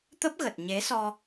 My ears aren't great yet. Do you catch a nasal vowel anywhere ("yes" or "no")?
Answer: no